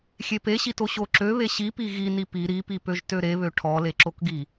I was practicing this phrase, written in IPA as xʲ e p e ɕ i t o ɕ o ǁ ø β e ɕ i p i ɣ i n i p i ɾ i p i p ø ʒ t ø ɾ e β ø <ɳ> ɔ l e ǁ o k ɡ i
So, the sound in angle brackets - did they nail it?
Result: no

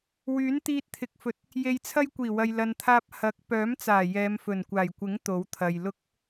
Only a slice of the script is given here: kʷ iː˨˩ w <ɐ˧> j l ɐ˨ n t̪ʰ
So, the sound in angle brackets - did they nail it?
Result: no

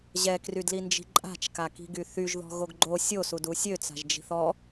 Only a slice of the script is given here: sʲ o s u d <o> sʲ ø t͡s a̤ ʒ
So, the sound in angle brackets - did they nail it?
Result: no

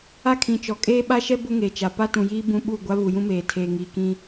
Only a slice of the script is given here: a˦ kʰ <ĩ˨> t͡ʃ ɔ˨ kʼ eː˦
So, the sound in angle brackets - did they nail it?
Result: yes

